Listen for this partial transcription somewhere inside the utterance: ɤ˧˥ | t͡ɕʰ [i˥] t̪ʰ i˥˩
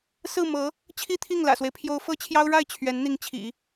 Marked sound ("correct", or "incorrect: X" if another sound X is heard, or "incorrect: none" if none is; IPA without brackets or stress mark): correct